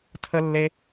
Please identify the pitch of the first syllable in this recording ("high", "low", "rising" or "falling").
high